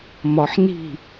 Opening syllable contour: low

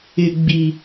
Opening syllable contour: low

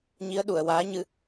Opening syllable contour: rising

